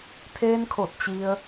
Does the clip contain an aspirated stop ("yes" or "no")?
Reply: yes